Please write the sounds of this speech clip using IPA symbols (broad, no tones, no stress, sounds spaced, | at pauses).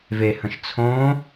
v e h ə̃ ʃ t͡sʰ õ